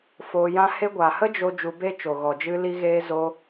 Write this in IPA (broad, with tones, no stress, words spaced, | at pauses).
foː˧jã˦ he˧ɡʷa˨hə˦ d͡ʒo˦ d͡ʒu˧be˦t͡ʃo˨ ɣɔ˨d͡ʒɨ˧ li˧ɣeː˧ zo˧